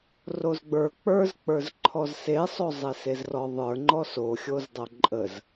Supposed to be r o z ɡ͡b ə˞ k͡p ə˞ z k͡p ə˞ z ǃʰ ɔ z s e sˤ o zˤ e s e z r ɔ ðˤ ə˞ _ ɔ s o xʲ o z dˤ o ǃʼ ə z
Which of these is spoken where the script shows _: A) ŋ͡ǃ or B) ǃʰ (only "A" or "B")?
A